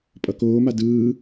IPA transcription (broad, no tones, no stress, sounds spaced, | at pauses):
pʼ ʌ k oː m a d ɯː